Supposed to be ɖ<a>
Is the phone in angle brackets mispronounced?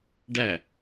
yes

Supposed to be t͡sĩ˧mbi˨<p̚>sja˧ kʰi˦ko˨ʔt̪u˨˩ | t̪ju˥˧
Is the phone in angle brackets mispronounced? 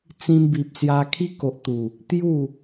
no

